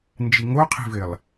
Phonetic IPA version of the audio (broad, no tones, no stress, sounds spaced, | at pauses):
n d͡ʒ i ŋ o qʰ i̤ v ɪ lˠ